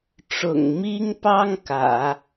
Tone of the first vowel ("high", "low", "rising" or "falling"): low